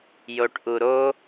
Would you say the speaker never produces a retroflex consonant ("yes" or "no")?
no